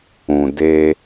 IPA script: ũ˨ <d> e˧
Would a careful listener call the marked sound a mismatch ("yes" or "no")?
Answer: no